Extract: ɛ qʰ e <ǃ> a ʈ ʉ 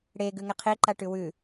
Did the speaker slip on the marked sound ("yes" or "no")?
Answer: no